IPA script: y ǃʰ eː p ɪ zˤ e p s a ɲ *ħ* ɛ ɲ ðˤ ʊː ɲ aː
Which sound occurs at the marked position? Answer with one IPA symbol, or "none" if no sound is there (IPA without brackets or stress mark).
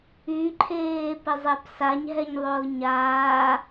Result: ɦ